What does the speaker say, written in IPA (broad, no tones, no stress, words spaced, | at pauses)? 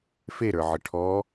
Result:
feɾə˞ʕə ʈʰɔ